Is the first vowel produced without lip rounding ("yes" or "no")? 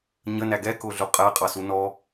yes